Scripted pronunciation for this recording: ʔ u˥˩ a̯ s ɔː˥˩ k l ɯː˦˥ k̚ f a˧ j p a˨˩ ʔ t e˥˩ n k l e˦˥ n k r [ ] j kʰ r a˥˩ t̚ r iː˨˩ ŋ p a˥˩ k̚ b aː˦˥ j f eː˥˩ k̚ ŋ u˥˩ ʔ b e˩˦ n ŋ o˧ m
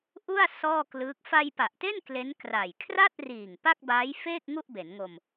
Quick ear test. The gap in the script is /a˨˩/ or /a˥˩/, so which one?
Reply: a˨˩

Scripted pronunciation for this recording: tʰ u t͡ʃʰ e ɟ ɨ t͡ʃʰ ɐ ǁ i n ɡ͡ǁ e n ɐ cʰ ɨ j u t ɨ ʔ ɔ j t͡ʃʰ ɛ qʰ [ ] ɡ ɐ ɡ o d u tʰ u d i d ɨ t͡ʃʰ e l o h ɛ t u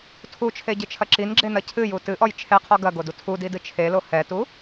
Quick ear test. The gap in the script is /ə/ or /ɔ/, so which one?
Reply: ɔ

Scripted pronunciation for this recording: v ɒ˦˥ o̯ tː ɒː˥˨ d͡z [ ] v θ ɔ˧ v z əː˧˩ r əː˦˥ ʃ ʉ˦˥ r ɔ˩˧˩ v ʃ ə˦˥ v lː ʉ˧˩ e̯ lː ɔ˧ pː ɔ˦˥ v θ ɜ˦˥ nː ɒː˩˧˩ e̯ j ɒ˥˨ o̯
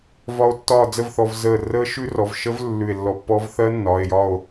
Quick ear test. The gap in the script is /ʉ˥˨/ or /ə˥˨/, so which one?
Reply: ə˥˨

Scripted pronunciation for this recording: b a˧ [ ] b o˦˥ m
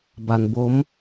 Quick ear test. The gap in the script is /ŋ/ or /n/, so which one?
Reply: n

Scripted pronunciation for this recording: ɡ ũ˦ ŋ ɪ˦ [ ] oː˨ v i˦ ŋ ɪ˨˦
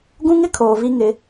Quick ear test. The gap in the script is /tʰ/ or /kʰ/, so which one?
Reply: kʰ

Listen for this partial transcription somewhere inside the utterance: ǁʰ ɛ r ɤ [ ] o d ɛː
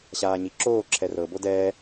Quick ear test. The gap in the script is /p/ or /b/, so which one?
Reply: b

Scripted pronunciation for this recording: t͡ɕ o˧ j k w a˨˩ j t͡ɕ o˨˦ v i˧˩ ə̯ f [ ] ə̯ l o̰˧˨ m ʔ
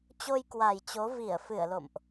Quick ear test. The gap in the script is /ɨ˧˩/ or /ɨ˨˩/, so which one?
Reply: ɨ˧˩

